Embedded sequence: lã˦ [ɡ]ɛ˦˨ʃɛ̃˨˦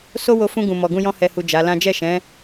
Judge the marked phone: incorrect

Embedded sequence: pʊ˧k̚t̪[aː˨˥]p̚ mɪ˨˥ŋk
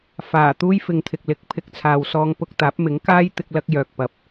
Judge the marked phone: correct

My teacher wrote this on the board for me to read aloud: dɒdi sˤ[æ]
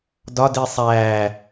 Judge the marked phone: correct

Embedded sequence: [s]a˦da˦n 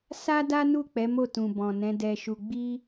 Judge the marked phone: correct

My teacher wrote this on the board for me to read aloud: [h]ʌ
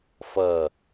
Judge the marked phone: incorrect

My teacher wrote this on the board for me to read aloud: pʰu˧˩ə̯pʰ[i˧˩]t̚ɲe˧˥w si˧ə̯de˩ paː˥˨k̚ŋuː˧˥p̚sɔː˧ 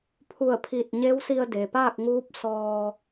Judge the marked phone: correct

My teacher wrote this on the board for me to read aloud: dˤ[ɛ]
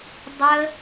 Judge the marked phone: incorrect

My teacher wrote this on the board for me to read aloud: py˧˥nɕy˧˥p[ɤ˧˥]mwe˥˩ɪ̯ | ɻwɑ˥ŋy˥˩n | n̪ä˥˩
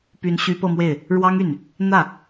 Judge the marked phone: incorrect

